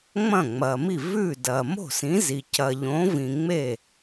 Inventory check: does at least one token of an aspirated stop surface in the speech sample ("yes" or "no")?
no